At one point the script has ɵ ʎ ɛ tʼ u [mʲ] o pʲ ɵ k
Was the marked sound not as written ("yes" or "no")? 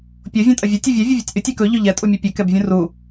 no